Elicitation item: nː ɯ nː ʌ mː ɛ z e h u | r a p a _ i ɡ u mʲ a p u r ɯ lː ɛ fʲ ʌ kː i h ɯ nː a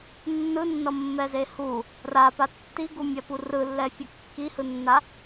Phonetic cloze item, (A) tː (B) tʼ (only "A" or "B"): A